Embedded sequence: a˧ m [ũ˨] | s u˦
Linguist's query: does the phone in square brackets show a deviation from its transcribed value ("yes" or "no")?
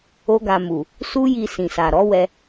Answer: yes